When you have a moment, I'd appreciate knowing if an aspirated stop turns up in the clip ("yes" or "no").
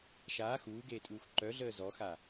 no